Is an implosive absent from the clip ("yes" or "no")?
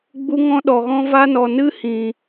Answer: no